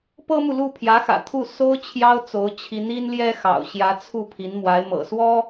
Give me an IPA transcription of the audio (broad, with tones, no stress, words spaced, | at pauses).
pɤ˥mu˨lu˥˩ pʰjä˧˥xä̰˨˩t̪ʰu˥˩ so˥ʊ̯ t͡ɕʰjɑ˥ʊ̯t͡so˧˥ʊ̯t͡ɕʰi˧˥n i˥nljɛ˥xɑ̰˨˩ʊ̯ ɕjä˧˥t͡sʰu˥˩ pʰi˧˥nmwa˧˥ɪ̯mɤ̰˨˩ swɔ˥